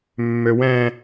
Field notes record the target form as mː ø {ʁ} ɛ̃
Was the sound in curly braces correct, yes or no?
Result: no